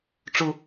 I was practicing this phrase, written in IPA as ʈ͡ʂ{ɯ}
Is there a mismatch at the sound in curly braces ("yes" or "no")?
yes